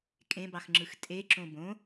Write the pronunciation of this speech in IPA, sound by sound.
kʼ ẽ b ɑ x ŋ͡ǁ ɯ x tʼ e ǁ õ b õ

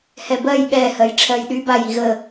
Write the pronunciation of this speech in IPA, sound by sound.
h ɛ b ɜ j ɠ ɛ h ɜ j ʈ͡ʂʰ ɜ j ɗ y b a j i ɣ ə

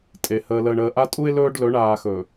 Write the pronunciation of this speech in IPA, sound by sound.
tʼ e˨ h əː˨ l əː˨ ɳ əː˨ ʔ a˦ tʼ u˦ ɪ̯ l ɵː˦ ɖ l ɵ˨˦ ɳ aː˨ x ɵ˨

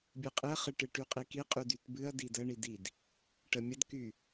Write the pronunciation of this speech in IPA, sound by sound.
bʲ ɨ qʼ ɨ ɐ̯ χ ɨ ʈ ɨ ʈ y qʼ i k i qʼ y d y t b ɨ ɐ̯ d i d ə ɳ i d i d | ʈ ə mʲ ə d k y

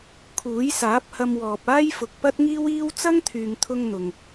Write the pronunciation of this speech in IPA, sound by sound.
kʰ uː˨˥ j s aː˨˥ p̚ h ɐ˧ m w ɔː˨ p̚ aː˥ j f ʊ˨ k̚ p ɐ˥ t̚ ŋ iː˥ w iː˥ w t͡s ɐ˥ ŋ t̪ʰ yː˨ ŋ t̪ʰ ʊ˧ ŋ n̪ ʊ˨ ŋ

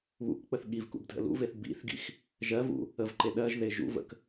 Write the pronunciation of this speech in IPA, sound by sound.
β ṵ k k͡p ə θ ɠ i v k ṵ b dʱ ə̰ l ṵ v e θ b ḭ θ ɡ ḭ x | ʒ ɜ v ṵ | ə v ǃ e ɗ ɜ ʒ ð e ʒ ṵ v ə̰ k

